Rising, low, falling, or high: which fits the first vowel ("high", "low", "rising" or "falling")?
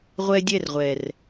high